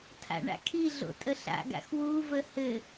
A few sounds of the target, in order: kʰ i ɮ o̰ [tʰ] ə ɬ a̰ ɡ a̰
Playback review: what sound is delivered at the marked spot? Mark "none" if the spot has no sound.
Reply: tʼ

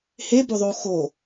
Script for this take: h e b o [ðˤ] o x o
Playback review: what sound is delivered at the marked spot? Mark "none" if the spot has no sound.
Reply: ðˤ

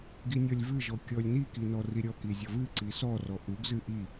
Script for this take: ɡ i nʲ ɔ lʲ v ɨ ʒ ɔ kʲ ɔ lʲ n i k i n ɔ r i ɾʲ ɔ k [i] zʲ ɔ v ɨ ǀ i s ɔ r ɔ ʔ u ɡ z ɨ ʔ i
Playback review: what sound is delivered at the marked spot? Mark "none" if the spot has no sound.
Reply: i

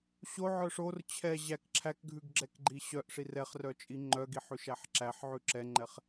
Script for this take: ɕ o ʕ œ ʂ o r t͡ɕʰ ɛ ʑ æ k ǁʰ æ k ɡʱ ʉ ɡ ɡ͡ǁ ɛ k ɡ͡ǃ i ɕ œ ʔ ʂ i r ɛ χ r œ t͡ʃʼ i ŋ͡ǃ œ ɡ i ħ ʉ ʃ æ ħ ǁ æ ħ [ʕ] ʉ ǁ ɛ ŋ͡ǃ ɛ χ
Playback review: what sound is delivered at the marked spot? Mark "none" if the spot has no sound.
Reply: ʕ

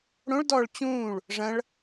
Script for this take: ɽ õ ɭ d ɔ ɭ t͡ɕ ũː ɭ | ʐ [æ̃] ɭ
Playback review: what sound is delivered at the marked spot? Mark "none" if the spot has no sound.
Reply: ɐ̃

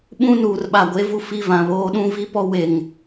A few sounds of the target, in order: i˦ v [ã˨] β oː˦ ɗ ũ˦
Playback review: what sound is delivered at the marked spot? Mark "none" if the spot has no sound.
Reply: ã˨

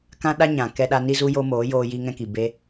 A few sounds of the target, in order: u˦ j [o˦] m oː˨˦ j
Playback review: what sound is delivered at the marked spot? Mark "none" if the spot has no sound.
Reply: o˦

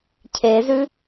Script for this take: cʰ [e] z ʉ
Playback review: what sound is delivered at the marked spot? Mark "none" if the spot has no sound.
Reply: e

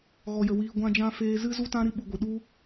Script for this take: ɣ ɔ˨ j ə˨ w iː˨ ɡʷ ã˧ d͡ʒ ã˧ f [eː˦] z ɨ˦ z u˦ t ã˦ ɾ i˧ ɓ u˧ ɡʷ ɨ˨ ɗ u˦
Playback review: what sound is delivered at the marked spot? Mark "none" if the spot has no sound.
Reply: eː˧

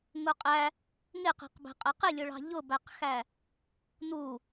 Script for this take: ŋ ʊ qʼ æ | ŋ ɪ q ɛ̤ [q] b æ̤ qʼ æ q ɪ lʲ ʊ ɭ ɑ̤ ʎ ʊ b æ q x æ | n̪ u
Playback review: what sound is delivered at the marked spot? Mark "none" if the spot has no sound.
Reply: q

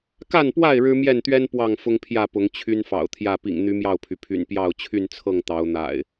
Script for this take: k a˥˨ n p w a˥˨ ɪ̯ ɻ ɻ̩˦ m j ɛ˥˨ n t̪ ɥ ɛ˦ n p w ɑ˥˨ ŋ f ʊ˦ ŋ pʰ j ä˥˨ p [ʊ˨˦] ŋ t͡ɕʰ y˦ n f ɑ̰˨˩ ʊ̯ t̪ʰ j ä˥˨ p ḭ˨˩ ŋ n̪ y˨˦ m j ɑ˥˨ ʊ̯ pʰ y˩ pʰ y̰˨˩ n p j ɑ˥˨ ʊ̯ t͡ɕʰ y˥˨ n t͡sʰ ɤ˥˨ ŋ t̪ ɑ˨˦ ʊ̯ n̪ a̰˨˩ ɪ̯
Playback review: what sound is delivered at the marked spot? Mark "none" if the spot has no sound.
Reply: ʊ˨˦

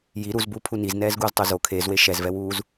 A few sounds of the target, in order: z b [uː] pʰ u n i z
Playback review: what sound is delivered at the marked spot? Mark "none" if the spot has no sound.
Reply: uː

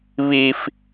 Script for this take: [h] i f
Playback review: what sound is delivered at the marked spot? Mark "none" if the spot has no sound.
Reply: β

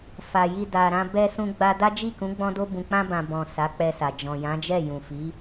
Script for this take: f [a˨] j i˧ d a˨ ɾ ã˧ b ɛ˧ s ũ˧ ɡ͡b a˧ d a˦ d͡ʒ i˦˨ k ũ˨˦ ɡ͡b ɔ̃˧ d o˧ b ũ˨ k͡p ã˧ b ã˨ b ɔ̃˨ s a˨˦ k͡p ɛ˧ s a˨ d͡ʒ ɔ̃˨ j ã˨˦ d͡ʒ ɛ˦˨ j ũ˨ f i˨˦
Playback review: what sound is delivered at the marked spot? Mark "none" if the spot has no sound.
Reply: a˨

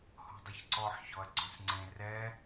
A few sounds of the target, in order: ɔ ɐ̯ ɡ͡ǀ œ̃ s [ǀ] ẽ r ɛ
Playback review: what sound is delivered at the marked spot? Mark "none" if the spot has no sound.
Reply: ŋ͡ǀ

